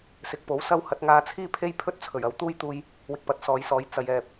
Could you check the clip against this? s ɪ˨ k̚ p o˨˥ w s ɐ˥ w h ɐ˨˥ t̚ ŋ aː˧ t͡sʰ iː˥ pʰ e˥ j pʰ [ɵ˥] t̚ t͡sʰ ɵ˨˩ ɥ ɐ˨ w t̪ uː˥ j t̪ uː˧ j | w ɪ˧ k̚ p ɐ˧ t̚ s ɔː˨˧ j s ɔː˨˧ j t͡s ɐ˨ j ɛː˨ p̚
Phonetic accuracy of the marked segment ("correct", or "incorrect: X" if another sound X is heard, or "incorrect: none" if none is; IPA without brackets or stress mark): correct